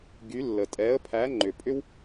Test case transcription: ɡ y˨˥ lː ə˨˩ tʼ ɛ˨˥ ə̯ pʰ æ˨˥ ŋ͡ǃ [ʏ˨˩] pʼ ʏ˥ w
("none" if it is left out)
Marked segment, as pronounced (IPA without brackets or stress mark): ʏ˨˩